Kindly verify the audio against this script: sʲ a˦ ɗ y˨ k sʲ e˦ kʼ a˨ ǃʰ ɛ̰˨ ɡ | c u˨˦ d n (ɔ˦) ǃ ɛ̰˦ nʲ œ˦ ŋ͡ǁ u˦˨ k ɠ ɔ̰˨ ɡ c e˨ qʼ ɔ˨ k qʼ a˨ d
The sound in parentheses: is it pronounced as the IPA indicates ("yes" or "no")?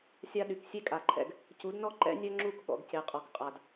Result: yes